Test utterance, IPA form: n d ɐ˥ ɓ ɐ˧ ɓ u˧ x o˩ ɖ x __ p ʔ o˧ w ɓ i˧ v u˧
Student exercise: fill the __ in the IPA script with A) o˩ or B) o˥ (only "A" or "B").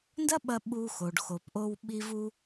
A